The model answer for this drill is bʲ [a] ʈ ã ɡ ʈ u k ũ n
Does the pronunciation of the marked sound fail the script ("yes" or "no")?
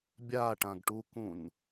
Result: no